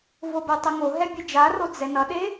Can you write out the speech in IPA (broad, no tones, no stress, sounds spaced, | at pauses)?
v o b ə tˤ ə ŋ o ɦ ɛ bʲ e d͡ʒ a r o d͡z ɛ n ʌ ɗ e